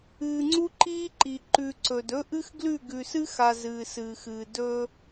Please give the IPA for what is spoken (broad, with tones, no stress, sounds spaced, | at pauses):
ɨː˨ ŋ͡ǀ u˦ ǃ iː˦ ǃ i˨ ǃ ʉ˨ ǀ ɵ˨ d ɵ˦ ʔ ɨ˦ x ɡ l ʉ˦˨ ɡ ʉ˨ s ɨ˦ x a˨ z ɨː˨ s ɨː˨ x ɨː˨ d ɵ˦